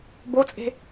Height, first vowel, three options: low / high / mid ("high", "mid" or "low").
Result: mid